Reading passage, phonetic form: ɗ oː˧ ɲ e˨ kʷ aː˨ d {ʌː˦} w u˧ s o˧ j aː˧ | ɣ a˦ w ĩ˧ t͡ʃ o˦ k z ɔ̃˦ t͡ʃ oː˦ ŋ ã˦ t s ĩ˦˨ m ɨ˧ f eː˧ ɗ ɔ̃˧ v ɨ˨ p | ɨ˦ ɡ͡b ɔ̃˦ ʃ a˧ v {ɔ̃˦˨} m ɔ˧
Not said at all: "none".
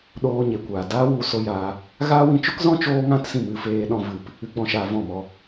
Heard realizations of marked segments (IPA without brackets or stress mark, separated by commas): aː˦, ɔ̃˦˨